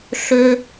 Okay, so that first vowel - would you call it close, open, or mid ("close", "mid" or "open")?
mid